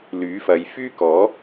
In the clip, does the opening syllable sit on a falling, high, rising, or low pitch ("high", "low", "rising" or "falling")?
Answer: rising